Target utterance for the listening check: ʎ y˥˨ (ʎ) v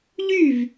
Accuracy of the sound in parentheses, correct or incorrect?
incorrect